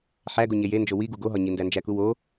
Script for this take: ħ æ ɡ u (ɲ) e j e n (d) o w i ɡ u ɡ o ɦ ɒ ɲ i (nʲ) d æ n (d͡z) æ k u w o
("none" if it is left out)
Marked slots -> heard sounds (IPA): ɲ, d͡ʒ, n, d͡ʒ

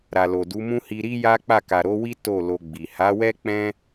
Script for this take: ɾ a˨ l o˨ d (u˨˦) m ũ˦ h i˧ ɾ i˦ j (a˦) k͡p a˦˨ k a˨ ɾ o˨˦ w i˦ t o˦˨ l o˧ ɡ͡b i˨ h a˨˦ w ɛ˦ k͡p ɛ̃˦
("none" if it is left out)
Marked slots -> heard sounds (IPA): u˨˦, a˦

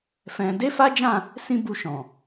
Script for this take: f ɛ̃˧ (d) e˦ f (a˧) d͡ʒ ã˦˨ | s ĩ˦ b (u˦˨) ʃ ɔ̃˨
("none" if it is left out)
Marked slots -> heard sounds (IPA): d, a˦, u˦˨

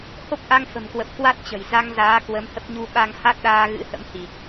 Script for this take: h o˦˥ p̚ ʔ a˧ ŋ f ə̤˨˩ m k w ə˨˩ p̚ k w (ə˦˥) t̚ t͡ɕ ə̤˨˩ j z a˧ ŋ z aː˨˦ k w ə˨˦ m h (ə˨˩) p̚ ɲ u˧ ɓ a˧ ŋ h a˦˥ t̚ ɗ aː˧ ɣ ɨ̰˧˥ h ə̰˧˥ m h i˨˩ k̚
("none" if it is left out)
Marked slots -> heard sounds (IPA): a˦˥, ə˦˥

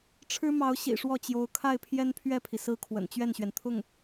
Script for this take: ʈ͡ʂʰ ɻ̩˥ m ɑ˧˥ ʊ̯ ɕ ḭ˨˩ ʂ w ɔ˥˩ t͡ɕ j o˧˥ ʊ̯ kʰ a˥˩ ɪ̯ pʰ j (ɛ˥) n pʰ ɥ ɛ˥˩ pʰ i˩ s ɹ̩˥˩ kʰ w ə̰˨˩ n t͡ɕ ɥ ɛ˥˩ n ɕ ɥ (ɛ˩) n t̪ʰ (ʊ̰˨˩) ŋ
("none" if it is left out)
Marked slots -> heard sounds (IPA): ɛ˥, ɛ˩, ʊ˥˩

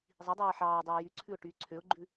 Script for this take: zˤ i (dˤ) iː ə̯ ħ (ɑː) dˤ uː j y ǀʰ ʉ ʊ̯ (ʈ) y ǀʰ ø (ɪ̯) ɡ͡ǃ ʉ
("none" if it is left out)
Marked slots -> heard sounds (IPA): dˤ, ɑː, ʈ, ʊ̯

